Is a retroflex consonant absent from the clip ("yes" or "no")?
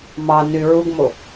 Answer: yes